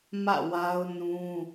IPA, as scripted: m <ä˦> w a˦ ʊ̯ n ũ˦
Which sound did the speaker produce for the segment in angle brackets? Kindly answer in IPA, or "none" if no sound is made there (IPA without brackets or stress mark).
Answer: ä̰˦˨